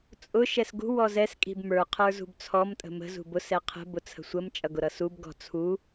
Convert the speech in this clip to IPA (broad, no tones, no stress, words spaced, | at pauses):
t͡sʼʊ ʃɛsɡṳ wɔzɛs kʼi̤bmə˞ qʰə˞zṳbt͡sʰɔm tʼə̤mə̤ zṳbʊs ɛqʰə̤ bʊt͡sʰə̤sʷəm t͡ʃʼʌɡʊɾʌsub ɡɔ̤t͡sʰu